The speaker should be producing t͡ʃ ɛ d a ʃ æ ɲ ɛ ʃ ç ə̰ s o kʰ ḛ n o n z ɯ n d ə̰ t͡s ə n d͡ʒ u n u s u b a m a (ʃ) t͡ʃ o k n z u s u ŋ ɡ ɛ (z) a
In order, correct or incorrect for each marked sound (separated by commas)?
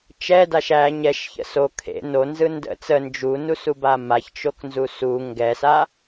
incorrect, incorrect